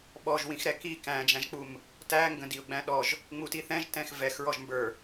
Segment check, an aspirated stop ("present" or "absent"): absent